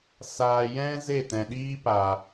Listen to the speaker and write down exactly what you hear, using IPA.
s aː˨ j ɛ̃˧ z e˦˨ t ɛ̃˨ ɗ iː˦ p a˨

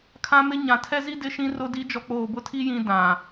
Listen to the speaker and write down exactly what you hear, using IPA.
kʰ ã˦ m ɪ˦ ɲ ã˨ tʰ ɛ˦ z i˦ d ɪ˦ ʃ ĩ˦ r ʊ˦ d i˦ d͡ʒ ɔ˨ k͡p oː˨ b ʊ˦˨ tʰ i˦ j ĩ˦ d ã˨

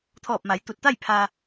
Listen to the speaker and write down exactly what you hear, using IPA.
t̪ʰ ɔː˧˩ p̚ m a˩˧ j t̪ u˧˩ t̚ t̪ a˥˨ j pʰ a˧

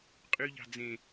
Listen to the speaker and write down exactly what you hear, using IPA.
qʼ y ʎ ɑ̤ d͡z ẽ

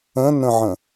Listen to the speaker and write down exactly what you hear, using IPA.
ə̃ n ə̃ ʕ ə̃

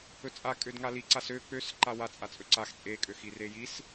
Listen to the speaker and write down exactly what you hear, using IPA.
ɵ t͡sʼ a kʼ ø d ŋ a l i ǀ a s ø k͡p ø s ǃ a w a t͡sʼ a t͡sʼ ɵ ǀ a x t͡sʼ e kʼ ø x i r e j i s

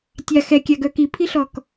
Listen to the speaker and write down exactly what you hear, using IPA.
tʲ a x ɛ kʲ a ɡ œ k i pʰ i ɬ ɔ k

